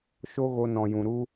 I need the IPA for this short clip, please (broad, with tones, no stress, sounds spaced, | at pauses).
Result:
ʃ o˦ ɣ o˧ n ɔ̃˨ j ũ˨ ɾ u˦